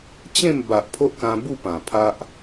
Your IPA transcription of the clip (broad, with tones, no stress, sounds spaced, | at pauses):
t͡ɕ ẽ˥˧ m b a˨ ʔ pʰ o˦ ʔ k ã˧ b u˥˧ p ã˨˩ pʰ a˦ ʔ